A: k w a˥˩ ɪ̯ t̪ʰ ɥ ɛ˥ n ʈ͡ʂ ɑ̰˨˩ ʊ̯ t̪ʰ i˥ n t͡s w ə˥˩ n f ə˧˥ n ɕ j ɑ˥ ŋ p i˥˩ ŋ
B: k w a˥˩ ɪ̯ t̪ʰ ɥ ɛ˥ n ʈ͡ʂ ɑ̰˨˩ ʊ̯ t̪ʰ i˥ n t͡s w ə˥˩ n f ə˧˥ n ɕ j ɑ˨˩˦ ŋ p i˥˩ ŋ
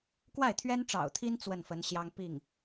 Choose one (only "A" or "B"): A